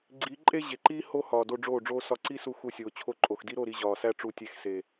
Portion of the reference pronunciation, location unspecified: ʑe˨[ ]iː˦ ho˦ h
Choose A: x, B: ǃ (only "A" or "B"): B